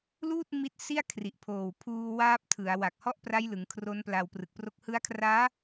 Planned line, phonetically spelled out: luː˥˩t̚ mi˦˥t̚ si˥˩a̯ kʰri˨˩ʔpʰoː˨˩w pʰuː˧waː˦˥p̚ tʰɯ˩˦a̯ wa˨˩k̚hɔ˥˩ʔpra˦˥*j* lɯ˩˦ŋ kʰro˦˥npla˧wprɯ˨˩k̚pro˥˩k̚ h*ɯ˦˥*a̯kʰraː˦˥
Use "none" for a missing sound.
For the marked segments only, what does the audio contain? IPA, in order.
j, ɯ˦˥

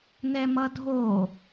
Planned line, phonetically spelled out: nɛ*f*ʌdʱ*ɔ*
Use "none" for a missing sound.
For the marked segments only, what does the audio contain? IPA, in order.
m, o

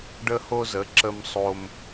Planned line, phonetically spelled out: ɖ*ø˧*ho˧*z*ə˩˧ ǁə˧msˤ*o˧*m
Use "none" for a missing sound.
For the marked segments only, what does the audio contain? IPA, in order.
ə˧, z, o˧

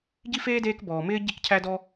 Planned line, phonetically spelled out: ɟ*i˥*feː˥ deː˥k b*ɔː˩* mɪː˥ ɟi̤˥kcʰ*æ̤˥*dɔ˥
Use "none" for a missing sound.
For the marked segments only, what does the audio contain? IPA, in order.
i˥, ɔː˩, æ˥

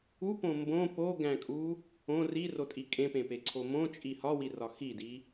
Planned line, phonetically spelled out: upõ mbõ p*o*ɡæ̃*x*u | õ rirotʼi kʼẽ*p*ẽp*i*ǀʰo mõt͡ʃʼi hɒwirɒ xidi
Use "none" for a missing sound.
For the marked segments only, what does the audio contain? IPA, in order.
o, kʼ, p, e

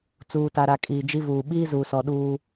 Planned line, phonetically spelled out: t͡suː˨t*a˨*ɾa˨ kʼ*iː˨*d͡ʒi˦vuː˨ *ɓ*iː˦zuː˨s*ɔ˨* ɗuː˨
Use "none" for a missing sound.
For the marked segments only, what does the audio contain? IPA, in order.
a˨, iː˨, ɓ, ɔ˨

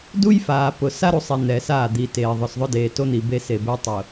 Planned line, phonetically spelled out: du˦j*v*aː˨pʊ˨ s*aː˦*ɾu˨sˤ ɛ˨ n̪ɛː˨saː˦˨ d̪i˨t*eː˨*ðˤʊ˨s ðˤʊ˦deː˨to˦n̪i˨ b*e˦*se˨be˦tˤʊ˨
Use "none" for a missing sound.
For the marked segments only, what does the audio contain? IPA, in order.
f, a˦, eː˨, e˦

